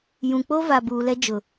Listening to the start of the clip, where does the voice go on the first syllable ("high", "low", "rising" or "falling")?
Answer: low